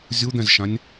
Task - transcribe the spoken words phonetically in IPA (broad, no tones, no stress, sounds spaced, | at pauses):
zʲ u d̪ ɛ̃ z ʃ ã nʲ